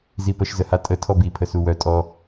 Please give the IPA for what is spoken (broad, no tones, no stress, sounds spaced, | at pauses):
z i p ə ʃ z ə h a tʼ ə tʰ ɔ b i pʰ ə s u w œ tʼ ɔ